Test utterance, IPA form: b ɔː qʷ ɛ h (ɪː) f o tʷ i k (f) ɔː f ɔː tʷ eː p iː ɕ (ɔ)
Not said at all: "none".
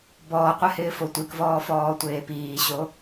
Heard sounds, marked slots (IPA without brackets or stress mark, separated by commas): ɪː, v, o